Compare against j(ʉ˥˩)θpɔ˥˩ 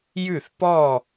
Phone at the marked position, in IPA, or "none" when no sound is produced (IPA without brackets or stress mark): ʉ˥˩